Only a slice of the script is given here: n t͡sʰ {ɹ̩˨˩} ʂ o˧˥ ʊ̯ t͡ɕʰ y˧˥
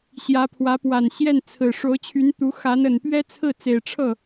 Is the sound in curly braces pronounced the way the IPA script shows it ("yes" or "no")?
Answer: yes